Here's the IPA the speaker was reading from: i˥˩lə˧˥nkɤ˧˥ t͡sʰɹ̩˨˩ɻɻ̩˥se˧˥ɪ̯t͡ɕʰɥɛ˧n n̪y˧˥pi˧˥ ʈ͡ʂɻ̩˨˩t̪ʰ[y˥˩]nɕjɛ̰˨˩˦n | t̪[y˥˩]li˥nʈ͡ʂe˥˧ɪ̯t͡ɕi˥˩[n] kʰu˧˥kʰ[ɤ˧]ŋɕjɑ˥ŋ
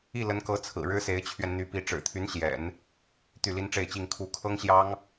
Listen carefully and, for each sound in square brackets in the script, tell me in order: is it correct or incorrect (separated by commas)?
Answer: incorrect, correct, incorrect, incorrect